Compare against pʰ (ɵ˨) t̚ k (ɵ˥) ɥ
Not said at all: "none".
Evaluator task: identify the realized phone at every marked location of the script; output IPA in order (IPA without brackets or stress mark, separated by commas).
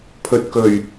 ɵ˨, ɵ˨˩